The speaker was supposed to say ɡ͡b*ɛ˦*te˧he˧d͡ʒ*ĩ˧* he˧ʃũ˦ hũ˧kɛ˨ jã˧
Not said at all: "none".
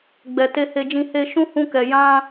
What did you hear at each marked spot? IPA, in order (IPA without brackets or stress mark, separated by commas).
ɛ˨, ĩ˧